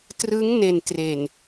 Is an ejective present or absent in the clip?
absent